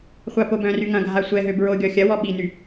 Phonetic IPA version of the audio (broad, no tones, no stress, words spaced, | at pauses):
χʷapobœ̃ry ŋɐ̃ɡʱa sʷɛɦø bɹoɡʲɔ xʲɐwɔ ɓiny